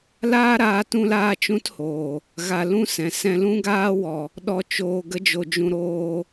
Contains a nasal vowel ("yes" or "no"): yes